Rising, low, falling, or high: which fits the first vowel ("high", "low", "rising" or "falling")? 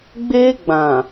high